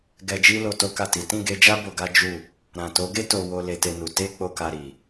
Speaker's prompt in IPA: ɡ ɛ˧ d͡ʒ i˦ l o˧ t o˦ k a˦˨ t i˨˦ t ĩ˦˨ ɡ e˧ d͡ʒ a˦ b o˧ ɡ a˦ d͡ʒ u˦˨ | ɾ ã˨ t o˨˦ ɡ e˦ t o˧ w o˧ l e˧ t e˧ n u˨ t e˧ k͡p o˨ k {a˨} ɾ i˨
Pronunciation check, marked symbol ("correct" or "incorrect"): correct